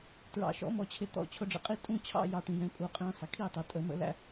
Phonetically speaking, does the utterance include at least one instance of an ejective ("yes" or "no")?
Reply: yes